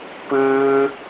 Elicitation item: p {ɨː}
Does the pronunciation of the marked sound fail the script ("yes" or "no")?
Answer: no